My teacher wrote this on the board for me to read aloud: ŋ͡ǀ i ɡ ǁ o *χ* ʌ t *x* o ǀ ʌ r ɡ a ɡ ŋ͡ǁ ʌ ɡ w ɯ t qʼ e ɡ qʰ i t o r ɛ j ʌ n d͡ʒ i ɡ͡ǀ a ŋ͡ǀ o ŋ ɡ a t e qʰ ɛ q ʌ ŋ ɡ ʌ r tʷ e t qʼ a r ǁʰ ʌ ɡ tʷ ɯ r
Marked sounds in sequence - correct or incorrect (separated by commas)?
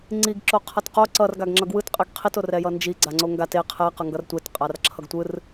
incorrect, incorrect